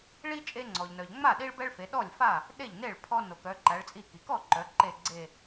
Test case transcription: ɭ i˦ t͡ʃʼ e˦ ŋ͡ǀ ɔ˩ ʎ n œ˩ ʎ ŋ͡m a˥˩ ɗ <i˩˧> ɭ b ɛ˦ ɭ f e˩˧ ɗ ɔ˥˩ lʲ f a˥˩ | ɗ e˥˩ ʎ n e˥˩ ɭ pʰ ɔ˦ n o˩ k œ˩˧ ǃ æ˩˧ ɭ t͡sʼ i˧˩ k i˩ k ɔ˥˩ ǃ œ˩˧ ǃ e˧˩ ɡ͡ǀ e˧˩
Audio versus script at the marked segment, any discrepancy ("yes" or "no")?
yes